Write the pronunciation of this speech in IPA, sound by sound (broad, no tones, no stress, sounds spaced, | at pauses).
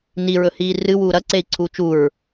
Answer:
n i ɹ ɵ h iː r ɨ w uː ɾ ɐ ǀ e i̯ ǀʰ uː t͡ʃ u ɹ